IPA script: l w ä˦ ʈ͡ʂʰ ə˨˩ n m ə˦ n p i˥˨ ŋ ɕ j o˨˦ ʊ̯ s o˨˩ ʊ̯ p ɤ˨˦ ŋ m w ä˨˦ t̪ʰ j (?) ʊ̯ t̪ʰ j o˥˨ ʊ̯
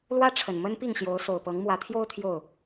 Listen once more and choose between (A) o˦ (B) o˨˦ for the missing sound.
A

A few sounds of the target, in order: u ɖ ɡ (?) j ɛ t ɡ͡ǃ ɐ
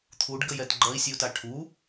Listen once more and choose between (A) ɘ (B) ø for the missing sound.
A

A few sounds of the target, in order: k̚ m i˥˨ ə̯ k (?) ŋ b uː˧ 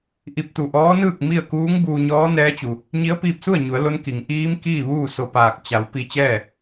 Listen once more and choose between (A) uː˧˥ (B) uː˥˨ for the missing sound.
A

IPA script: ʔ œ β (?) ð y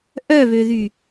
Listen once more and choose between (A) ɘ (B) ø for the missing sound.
B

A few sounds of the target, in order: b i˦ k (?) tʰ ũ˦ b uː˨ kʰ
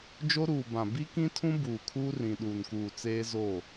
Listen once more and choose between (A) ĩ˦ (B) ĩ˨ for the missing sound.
A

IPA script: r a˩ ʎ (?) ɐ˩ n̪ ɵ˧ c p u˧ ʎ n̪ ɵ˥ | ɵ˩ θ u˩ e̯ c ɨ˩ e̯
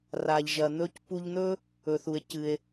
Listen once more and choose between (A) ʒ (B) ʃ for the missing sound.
A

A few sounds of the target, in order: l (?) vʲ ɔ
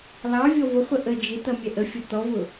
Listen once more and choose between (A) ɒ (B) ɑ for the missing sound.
B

